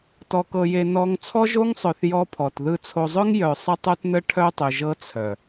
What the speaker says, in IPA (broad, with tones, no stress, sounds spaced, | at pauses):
t ɔ˨ k ɤ˨ j e˨ n ɔ˨ ŋ t͡sʰ ɔ˦ ʒ o˦ ŋ sˤ œ˨ θ j ɔ˦ pʰ ɔ˨ t ð ɯ˨ t͡sʰ o˨ zˤ œ˦ ŋ j œ˨ sˤ ə˦ tˤ o˦ t n ə˦ ʈʰ œ˦ tˤ ɵ˨ ʒ ɤ˦ t͡sʰ œ˨